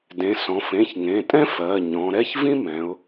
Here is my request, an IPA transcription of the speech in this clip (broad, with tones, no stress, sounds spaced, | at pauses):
d ẽ˩˧ s ɔ̃˩˧ f ẽ˩˧˩ ç ŋ ẽ˩˧˩ tʼ ɛ̃˥ f ɜ˩˧˩ ɲ ɔ̃˩˧ ɾ ɛ˥ ç v ĩ˥ m ɛ̃˩˧ ʊ̯